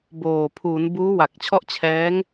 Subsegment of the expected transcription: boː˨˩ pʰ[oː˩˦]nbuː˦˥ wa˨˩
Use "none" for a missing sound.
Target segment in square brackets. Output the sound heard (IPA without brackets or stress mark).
uː˩˦